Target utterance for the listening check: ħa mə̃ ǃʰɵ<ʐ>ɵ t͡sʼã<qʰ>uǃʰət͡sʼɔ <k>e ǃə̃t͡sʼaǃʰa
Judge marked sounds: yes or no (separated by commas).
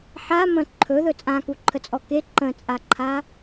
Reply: no, no, yes